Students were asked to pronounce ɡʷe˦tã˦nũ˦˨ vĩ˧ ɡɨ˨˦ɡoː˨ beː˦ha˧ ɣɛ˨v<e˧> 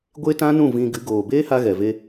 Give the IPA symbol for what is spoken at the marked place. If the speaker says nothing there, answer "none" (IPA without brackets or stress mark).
e˧